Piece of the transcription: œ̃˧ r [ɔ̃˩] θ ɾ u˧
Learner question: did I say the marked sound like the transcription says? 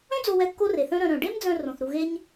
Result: no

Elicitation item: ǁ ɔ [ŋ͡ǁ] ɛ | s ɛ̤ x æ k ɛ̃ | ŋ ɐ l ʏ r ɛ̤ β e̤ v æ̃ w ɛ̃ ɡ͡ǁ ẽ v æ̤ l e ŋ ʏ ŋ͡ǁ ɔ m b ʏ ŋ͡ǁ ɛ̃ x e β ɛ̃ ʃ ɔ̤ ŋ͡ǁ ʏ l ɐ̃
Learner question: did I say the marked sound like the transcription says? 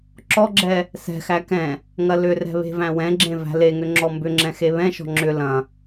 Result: no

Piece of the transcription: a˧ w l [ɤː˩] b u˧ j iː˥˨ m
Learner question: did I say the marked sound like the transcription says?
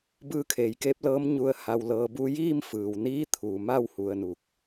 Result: no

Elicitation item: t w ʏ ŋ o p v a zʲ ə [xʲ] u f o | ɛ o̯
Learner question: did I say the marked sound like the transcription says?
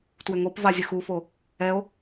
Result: no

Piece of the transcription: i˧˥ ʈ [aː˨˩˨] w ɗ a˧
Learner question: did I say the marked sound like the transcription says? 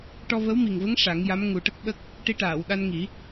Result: yes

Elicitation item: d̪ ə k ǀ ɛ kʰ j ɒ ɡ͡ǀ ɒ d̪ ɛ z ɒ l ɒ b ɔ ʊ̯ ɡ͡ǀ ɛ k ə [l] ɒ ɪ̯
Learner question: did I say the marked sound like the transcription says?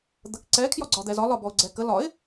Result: yes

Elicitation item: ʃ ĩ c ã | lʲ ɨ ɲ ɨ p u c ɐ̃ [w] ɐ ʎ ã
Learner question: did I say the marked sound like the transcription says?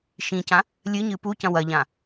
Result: yes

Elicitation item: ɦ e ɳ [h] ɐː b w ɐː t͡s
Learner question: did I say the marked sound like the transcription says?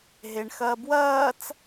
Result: no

